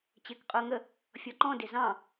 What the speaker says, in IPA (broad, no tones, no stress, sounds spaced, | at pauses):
t͡ɕ ɪː k qʼ ʊː ŋ ə | fʲ ɔ ǃ ɔ̃ d ɪ z ɑ̃